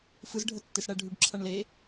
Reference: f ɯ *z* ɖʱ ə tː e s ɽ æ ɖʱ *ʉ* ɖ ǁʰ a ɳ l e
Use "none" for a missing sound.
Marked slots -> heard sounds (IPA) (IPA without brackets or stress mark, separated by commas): z, ʉ